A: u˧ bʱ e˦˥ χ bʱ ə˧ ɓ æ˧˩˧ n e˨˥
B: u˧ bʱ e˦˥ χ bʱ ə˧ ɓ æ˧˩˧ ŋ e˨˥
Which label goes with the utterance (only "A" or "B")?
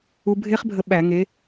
B